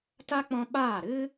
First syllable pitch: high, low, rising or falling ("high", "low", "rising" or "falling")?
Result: high